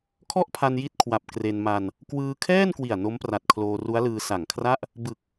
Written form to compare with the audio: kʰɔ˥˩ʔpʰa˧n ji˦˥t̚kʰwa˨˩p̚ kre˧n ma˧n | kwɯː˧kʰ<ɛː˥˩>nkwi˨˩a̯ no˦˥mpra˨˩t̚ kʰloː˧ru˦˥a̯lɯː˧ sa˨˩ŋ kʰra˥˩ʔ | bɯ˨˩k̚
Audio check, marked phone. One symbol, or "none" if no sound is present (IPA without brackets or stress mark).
ɛː˥˩